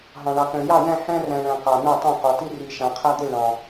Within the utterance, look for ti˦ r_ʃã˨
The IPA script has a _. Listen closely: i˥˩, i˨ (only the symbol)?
i˨